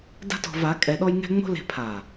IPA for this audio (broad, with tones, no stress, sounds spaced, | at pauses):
d a̤˦ t ɔ̤˧ v a˨˦ kʼ ɛ˧ ɗ ɔ˦ j ŋ ɛ̤˦ ŋ͡m o̤˦ l e̤˧ pʰ a˨